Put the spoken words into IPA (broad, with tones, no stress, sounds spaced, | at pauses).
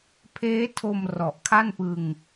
pʰ eː˦˥ tʰ o˧ m r ɔ˨˩ ʔ kʰ a˥˩ n p ɯ˧ ŋ